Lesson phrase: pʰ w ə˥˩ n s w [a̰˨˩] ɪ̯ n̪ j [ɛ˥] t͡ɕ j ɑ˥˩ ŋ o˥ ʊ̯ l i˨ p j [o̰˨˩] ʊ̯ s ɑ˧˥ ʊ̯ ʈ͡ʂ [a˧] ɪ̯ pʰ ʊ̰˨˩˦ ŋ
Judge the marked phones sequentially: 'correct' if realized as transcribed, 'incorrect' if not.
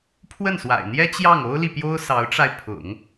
correct, correct, incorrect, correct

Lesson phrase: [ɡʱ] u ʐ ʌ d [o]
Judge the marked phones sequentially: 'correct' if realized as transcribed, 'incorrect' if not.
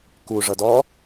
incorrect, incorrect

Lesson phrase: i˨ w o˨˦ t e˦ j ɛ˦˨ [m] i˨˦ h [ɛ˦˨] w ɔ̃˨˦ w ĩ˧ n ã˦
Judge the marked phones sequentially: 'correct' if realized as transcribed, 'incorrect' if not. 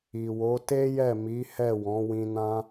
correct, correct

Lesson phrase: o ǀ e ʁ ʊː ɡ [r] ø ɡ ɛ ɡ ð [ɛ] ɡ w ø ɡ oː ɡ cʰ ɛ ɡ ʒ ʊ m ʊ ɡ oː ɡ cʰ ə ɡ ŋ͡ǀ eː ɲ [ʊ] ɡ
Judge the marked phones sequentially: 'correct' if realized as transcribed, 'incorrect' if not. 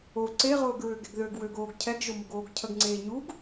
incorrect, incorrect, incorrect

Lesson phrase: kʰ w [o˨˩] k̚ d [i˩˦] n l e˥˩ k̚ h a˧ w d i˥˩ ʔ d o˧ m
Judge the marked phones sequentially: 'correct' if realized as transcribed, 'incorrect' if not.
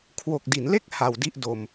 correct, correct

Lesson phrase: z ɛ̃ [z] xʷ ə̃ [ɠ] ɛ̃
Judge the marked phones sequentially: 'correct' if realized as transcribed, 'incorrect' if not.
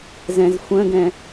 correct, incorrect

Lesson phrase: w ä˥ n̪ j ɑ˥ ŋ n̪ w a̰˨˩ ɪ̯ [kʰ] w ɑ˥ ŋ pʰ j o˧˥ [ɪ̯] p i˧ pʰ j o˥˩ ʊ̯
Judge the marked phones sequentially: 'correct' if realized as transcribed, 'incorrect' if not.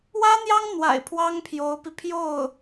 incorrect, incorrect

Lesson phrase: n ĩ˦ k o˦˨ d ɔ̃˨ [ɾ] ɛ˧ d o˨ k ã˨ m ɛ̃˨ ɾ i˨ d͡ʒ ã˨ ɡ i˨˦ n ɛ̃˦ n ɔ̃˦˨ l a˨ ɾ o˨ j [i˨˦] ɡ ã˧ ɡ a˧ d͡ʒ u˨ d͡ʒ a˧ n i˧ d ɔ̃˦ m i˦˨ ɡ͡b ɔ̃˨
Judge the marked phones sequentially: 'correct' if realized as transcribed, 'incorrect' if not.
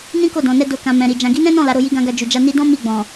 incorrect, correct

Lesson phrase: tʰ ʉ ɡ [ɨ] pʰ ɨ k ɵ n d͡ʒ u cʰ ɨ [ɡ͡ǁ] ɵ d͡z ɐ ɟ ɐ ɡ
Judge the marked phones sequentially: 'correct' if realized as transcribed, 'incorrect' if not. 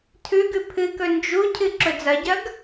incorrect, incorrect

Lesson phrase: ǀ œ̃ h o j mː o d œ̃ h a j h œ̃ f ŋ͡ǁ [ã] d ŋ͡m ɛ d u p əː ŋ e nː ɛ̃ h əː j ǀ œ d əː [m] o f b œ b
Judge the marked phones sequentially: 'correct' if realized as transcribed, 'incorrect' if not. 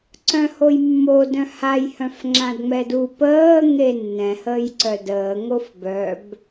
correct, incorrect

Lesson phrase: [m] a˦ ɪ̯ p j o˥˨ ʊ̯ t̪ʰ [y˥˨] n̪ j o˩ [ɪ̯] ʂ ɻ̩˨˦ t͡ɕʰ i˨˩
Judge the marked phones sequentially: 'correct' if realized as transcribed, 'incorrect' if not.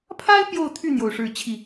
incorrect, correct, incorrect

